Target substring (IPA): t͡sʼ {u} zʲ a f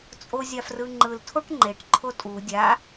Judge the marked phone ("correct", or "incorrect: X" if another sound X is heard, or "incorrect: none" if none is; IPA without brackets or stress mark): incorrect: o